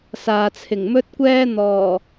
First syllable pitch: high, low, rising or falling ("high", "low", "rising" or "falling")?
low